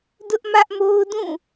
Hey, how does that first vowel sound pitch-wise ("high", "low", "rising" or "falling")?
high